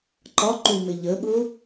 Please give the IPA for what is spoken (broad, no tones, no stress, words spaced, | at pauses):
ǃɒǃumɪ ʎəɠʊ